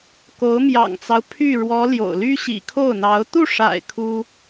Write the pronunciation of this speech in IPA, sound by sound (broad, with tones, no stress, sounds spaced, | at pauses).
k o˧˥ ʊ̯ m j ɑ̰˨˩ ŋ t͡s ɑ˦ ʊ̯ pʰ y˥˩ ɻ w ɔ˧˥ l j o̰˨˩ ʊ̯ l y˥ ɕ ḭ˨˩ kʰ o˥˩ ʊ̯ n̪ ɑ˧˥ ʊ̯ t̪ u˥˩ ʂ a̰˨˩ ɪ̯ kʰ u˥